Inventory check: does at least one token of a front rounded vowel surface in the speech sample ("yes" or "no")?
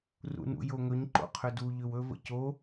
yes